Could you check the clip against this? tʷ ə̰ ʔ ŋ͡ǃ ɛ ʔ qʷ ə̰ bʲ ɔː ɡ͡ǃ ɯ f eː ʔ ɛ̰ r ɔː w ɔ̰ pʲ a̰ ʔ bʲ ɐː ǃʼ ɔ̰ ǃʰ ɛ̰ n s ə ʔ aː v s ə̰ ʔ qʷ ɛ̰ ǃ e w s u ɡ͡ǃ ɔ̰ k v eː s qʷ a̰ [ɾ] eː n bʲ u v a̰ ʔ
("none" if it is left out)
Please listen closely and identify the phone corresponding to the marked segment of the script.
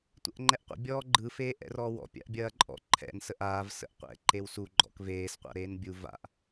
ɾ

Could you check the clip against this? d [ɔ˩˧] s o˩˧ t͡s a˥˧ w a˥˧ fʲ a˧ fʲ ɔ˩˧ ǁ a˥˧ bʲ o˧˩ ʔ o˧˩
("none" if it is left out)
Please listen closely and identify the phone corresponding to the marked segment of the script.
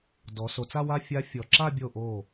ɔ˩˧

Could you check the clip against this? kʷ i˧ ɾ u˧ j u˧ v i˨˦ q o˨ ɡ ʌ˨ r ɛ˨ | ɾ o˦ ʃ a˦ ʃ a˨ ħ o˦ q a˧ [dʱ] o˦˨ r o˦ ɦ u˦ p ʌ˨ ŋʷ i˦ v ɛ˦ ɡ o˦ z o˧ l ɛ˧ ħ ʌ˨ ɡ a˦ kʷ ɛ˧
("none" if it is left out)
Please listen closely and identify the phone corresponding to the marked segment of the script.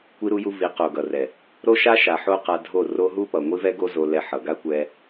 dʱ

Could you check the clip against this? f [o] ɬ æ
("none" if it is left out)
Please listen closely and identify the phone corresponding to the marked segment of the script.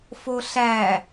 o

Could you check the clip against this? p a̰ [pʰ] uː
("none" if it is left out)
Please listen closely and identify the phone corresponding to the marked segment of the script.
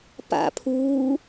pʰ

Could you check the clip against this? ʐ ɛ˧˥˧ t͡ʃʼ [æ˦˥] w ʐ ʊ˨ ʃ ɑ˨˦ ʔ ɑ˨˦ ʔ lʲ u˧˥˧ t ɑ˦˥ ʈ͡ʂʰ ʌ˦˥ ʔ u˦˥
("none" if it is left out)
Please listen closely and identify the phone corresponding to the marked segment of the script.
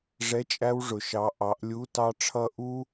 æ˦˥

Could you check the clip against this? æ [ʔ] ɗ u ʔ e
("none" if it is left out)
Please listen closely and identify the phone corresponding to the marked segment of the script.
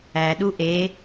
none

